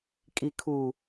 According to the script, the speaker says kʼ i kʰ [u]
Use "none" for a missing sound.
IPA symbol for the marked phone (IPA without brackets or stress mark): u